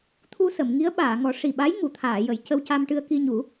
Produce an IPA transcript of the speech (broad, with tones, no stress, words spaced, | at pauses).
t̪ʰu˧ sə˨˩˨mŋi˧˥ə̯ ɓaː˨˩˨ŋɔ˨˩˦ ʂi˨˩ɓa˧˥j ŋu˨˩˨t̪ʰaː˨˩˨ jə˨˩˨j cə˧wca˧mʈɨ˧ə̯ki˧ ɲu˨˩˦